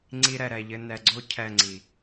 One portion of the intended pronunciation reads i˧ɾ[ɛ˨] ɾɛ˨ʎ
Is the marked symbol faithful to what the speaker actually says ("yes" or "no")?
yes